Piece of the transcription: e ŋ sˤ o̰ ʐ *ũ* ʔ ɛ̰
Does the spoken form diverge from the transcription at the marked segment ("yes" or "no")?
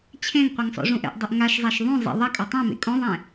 no